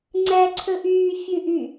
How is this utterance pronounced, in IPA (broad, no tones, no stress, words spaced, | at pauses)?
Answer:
ŋ͡ǀæǀʰɵʔyː fʲʉʔy